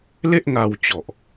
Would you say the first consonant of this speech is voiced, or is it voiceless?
voiced